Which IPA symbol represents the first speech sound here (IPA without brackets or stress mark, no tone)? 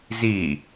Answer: z